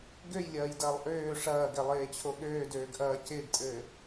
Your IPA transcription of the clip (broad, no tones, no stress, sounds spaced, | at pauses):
ɡ ø j lʲ ɐː j d ɐː lˠ ʔ øː ʂ ɐː ɡ ɛ lˠ eː t͡ɕʰ o ɠ øː d øː ɡ ʔ ɐː c ɪː ɡ tʼ ɘː